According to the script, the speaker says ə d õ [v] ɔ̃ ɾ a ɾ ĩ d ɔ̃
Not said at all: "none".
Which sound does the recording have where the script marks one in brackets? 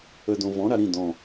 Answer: v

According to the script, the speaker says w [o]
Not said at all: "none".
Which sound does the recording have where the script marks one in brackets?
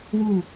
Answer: u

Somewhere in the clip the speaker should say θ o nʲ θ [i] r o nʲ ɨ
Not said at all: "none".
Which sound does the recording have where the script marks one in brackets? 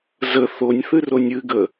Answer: ɨ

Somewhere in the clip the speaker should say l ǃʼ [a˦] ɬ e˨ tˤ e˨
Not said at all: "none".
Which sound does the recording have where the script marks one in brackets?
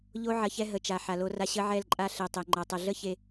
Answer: a˦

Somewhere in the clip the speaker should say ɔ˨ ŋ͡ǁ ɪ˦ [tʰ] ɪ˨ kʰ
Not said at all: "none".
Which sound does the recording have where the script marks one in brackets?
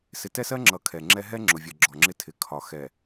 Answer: tʰ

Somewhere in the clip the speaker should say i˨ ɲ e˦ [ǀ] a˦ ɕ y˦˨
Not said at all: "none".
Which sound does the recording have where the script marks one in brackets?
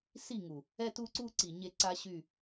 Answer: ǀ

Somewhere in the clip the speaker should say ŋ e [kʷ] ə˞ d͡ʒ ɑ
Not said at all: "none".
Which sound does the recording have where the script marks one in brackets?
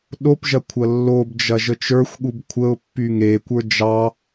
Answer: kʷ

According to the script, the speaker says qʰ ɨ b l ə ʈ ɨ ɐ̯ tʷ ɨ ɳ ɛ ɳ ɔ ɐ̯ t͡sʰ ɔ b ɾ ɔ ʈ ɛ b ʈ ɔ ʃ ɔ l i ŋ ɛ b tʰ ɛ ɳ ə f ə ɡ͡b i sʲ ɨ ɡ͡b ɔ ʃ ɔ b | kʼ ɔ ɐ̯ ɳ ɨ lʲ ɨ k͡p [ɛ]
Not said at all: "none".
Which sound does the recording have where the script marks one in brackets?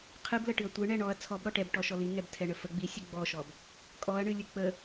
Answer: ə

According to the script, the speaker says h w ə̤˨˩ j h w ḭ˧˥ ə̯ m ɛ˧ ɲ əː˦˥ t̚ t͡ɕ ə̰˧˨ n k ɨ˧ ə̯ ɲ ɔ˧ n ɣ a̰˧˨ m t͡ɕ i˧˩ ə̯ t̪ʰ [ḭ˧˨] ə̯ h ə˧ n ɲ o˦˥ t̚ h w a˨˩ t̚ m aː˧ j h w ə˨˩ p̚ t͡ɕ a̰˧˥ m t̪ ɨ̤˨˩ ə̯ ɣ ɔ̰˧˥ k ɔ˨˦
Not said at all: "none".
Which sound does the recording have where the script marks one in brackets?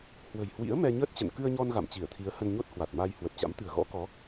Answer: i˨˦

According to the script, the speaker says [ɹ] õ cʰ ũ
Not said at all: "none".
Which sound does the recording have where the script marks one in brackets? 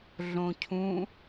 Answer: ɮ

